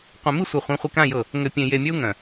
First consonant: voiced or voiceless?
voiceless